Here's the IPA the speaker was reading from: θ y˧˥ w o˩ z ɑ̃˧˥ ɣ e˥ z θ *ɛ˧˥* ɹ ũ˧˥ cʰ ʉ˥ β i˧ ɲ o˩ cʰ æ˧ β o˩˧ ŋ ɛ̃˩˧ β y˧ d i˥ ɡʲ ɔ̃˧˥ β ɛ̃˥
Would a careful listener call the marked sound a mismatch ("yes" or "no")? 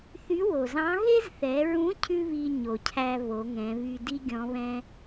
yes